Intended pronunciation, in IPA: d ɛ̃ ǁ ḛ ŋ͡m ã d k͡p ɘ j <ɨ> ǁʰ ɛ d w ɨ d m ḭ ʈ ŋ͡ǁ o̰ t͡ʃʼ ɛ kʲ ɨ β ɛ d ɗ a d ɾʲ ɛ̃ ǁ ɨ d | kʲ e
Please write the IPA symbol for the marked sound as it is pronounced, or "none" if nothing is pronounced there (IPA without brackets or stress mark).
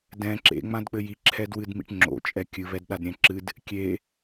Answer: i